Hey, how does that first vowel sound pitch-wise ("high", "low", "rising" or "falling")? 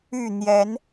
falling